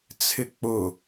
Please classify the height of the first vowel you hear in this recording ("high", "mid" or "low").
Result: high